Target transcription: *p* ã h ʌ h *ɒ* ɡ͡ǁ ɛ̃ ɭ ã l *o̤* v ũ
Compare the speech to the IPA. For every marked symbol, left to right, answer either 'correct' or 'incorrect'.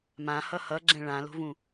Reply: incorrect: m, incorrect: ʌ, correct

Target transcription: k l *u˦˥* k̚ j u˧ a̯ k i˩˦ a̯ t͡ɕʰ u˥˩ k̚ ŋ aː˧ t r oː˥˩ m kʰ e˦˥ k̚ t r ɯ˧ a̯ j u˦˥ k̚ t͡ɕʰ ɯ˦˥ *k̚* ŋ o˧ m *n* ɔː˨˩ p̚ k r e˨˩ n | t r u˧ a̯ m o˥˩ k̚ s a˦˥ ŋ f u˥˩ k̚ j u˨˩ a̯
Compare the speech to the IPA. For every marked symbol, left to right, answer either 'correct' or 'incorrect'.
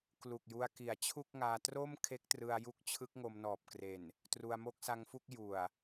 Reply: incorrect: u˨˩, correct, correct

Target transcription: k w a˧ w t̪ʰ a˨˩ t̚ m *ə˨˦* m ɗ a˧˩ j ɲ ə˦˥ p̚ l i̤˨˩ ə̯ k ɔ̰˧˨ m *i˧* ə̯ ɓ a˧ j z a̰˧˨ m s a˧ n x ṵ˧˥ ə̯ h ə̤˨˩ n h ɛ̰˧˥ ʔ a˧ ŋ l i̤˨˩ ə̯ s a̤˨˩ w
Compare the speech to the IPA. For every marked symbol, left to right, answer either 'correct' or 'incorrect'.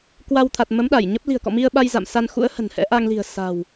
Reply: correct, correct

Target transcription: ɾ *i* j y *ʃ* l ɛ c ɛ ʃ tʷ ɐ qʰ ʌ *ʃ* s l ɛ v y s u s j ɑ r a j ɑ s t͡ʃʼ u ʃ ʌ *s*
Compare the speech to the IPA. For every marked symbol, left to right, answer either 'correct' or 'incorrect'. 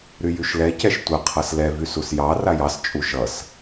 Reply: incorrect: y, correct, incorrect: none, correct

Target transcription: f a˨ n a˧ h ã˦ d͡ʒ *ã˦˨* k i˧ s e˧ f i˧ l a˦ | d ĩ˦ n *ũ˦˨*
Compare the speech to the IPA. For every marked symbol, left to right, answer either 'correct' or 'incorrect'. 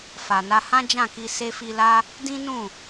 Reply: correct, correct

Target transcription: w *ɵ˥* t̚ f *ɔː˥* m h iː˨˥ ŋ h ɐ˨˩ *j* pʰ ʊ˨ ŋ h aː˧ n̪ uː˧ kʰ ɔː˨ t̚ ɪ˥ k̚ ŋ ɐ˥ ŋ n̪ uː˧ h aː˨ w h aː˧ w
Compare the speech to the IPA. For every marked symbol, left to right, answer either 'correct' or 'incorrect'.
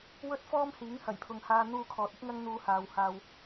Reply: correct, correct, correct

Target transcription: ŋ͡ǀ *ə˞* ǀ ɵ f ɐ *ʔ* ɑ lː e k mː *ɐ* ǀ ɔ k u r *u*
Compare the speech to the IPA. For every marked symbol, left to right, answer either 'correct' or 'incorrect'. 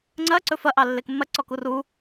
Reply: incorrect: ɐ, correct, correct, correct

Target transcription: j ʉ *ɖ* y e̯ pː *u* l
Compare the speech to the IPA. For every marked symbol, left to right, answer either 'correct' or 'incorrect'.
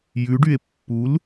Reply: correct, correct

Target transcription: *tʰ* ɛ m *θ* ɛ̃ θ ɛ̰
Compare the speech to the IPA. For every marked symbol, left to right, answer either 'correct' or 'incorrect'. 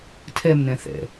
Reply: correct, incorrect: n

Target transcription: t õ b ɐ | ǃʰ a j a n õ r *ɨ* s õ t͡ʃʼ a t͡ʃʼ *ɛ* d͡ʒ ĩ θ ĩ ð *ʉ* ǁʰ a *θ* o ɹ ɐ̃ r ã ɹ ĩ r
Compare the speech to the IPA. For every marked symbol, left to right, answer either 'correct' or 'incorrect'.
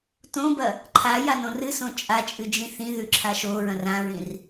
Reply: correct, incorrect: ɨ, correct, incorrect: ʃ

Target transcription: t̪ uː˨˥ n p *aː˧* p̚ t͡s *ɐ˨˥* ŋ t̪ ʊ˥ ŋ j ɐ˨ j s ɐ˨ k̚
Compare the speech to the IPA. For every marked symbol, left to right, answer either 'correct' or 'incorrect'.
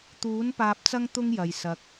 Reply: correct, incorrect: ɐ˥

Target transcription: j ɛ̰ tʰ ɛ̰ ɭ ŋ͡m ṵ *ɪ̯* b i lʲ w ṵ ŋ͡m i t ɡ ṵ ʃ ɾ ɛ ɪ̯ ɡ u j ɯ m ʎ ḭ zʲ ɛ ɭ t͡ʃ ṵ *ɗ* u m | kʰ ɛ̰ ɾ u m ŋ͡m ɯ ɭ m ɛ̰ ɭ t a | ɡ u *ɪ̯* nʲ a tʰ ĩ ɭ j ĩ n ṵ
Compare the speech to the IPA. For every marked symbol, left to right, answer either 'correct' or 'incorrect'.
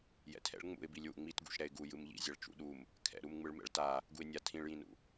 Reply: correct, correct, correct

